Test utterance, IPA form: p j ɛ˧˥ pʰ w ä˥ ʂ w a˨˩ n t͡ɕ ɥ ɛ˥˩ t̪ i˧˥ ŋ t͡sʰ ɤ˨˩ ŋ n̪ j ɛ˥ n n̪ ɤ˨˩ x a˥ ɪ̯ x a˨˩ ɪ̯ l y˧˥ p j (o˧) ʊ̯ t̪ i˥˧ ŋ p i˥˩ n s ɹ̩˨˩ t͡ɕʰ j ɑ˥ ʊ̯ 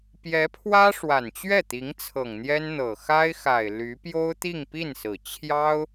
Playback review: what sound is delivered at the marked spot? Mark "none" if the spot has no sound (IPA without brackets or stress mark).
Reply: o˥